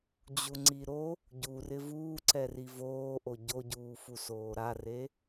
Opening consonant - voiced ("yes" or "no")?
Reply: yes